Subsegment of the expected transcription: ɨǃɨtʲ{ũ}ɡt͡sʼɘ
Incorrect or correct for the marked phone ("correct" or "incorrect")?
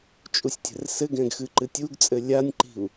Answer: incorrect